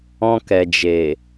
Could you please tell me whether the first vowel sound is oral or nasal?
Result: nasal